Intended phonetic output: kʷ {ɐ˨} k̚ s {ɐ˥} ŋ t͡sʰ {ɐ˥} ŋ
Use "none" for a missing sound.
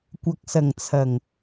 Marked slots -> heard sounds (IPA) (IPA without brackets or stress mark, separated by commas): ɐ˨, ɐ˨˩, ɐ˨˩